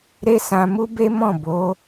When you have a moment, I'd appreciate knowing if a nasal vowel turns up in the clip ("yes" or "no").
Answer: yes